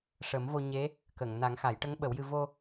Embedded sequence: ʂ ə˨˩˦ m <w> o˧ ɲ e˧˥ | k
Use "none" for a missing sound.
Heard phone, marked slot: v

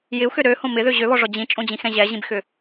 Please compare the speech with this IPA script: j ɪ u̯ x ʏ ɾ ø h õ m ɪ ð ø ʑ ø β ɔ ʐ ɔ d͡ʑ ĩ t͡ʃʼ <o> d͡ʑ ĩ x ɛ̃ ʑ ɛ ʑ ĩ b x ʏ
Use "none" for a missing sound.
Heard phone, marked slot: õ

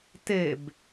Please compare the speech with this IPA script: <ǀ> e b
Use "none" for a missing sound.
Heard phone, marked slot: t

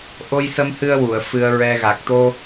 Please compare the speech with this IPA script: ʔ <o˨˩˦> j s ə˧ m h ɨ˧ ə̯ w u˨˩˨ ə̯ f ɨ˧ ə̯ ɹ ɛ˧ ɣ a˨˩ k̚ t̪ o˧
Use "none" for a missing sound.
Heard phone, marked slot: o˧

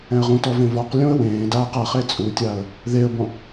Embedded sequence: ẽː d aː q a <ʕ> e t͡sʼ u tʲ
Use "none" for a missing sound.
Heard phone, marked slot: χ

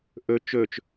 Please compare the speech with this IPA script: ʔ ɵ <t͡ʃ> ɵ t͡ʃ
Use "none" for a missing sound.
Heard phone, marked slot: t͡ʃ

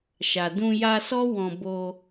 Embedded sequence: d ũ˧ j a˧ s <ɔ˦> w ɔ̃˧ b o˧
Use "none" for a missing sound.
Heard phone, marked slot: ɔ˦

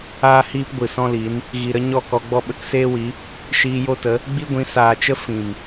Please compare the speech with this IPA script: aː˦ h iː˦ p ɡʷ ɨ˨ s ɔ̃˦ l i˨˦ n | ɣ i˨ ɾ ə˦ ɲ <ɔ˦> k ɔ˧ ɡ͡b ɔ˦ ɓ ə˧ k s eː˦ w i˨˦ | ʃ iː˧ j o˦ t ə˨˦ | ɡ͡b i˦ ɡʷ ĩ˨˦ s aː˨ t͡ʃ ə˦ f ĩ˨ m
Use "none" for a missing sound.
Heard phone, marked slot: ɔ˦˨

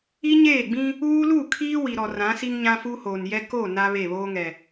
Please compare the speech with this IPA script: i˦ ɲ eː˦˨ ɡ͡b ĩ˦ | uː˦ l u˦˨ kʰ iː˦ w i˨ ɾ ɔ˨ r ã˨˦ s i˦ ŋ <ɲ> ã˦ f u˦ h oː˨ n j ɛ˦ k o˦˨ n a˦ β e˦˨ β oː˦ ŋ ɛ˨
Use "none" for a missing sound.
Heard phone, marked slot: ɲ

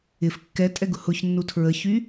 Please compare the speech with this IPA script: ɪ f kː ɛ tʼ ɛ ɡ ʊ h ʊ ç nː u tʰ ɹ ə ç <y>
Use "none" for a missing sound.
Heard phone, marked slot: y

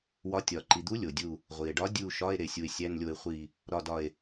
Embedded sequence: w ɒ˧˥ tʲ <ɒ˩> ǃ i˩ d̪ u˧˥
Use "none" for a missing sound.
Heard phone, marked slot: ɒ˩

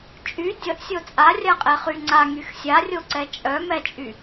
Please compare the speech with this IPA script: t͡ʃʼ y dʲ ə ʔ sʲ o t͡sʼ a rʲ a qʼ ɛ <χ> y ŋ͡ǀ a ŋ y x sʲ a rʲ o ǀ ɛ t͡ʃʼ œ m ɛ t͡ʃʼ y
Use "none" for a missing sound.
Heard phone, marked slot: χ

